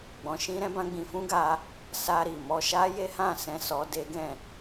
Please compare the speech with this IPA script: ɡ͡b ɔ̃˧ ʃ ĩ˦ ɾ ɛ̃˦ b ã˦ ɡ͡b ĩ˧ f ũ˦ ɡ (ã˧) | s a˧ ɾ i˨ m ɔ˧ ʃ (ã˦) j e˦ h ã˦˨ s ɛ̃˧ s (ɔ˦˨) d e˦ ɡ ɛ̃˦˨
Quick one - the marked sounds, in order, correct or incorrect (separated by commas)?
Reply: incorrect, incorrect, incorrect